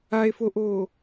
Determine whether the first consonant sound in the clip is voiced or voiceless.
voiceless